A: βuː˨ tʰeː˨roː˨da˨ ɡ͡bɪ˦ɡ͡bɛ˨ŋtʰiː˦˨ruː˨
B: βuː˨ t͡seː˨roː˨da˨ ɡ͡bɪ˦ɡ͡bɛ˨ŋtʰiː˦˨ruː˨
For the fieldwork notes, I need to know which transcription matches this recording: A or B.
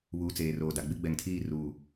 B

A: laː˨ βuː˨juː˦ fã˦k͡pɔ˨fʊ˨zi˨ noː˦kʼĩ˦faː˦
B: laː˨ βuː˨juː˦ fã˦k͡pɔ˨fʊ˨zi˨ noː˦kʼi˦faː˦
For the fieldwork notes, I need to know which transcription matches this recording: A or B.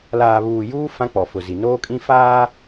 A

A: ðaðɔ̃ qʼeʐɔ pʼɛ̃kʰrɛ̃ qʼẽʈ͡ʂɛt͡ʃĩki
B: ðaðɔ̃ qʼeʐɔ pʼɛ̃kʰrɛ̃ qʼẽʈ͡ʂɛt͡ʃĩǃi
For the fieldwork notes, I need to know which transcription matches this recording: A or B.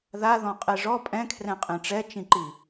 B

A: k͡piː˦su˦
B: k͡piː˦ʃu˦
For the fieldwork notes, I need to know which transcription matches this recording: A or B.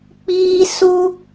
A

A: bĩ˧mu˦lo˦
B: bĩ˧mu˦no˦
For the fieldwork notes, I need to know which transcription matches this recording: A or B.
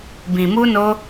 B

